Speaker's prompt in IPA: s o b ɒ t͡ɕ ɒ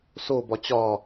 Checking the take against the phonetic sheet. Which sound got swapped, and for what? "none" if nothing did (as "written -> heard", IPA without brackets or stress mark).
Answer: none